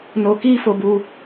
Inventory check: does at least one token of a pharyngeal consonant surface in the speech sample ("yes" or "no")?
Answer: no